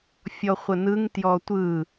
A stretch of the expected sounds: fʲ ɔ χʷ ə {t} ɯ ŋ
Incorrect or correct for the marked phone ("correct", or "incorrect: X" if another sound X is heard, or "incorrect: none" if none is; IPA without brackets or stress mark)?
incorrect: n